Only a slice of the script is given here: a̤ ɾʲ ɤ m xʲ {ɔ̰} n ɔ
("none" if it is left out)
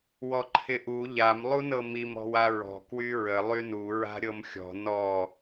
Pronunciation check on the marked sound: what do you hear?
ɔ̤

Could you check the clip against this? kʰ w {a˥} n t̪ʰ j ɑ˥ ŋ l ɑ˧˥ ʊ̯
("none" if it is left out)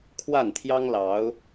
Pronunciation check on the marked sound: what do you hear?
a˥˩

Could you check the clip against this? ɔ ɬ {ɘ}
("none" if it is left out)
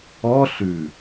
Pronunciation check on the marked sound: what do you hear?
ʉ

